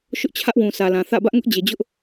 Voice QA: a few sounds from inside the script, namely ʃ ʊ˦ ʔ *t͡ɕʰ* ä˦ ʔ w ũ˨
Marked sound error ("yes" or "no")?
no